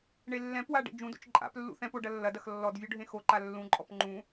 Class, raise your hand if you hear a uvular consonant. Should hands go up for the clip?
no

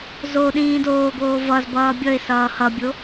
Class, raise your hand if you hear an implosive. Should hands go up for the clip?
yes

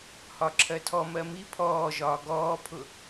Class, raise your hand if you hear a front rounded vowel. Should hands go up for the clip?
no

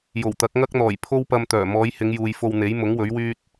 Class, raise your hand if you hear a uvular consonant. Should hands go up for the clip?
no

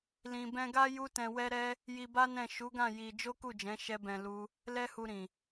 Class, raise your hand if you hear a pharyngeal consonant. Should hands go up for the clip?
no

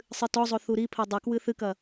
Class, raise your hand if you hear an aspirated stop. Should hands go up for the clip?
yes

